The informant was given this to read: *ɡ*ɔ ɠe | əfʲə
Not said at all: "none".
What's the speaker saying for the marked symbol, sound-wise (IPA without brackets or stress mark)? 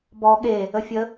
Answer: b